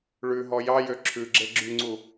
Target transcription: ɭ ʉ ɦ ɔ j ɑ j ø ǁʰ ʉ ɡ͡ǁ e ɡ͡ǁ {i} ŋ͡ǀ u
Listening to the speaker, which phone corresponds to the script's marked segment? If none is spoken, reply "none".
y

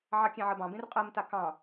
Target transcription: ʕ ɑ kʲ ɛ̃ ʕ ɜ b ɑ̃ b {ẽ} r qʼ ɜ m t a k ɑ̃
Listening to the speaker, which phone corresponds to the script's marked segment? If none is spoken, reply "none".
ẽ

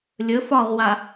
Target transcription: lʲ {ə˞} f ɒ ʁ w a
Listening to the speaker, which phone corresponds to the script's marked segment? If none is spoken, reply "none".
ə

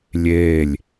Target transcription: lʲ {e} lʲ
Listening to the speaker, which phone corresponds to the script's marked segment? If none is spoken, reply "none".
e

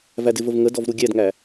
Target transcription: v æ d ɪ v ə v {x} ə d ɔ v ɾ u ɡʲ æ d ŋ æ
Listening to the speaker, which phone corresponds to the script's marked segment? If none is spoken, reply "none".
ŋ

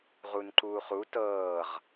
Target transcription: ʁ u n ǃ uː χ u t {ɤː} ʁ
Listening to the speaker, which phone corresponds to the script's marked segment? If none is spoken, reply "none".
ɤː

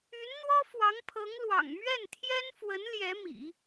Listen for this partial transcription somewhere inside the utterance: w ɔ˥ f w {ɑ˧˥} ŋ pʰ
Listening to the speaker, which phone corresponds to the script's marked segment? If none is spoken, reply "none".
ɑ˧˥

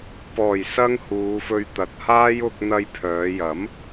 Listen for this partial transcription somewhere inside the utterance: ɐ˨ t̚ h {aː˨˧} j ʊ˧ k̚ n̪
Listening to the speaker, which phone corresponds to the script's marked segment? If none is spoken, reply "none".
aː˥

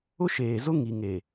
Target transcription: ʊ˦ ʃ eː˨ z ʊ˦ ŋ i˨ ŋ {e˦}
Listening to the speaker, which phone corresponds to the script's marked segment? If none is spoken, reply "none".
e˨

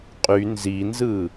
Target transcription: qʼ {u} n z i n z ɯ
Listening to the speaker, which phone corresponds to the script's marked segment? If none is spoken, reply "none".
y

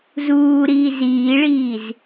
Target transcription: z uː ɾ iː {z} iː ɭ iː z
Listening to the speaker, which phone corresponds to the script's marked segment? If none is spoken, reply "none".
z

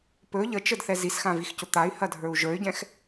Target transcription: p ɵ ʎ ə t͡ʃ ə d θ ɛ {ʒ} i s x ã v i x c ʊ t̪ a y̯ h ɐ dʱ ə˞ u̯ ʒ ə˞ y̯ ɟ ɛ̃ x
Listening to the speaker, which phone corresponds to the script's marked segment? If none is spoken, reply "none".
z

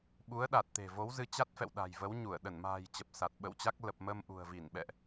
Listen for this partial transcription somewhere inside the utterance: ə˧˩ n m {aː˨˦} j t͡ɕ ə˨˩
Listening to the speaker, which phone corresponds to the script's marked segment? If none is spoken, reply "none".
a̤ː˨˩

